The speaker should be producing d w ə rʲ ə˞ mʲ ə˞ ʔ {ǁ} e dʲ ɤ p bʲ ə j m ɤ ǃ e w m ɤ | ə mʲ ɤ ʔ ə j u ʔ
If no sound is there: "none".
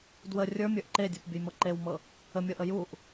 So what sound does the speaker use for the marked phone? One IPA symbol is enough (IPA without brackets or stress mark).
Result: ǃ